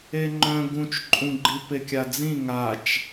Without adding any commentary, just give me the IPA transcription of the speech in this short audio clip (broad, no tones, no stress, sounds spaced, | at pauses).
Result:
e ŋ͡ǃ œ̃ ɡ ũ t͡ʃ ǃʼ ũ ɡ͡ǃ i p e kʲ a d͡z ĩ ŋ a t͡ʃ